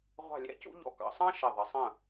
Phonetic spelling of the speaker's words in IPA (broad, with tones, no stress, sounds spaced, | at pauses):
ʁʷ ɑ̤˥˧ lʲ æ̰˥ c ṵ˥ ʎ ɔ̰˧ k ɑ̰˩˧ sˤ ɑ̃˥ ʃ ɪ˧˩ ðˤ ə˩˧ sˤ ə̃˧˩